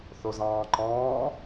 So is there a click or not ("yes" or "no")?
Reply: yes